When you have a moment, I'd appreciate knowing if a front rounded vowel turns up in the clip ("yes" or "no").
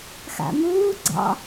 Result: no